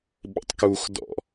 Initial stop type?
implosive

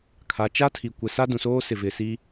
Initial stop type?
aspirated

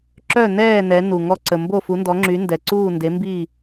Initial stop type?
click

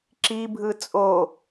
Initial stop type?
click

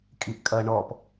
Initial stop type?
ejective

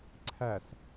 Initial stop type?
click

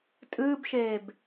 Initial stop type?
ejective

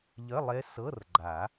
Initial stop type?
click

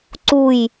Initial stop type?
click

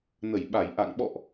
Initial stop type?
implosive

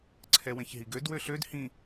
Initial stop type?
click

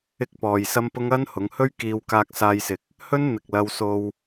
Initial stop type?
plain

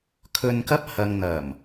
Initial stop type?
aspirated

